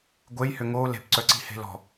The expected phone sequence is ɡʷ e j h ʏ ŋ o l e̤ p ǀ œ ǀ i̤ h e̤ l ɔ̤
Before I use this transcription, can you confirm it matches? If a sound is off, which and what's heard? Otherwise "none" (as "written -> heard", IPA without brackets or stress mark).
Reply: none